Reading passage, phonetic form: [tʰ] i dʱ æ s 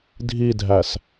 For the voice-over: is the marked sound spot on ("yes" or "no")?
no